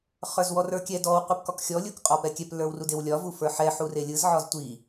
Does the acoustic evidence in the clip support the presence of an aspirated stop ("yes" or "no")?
no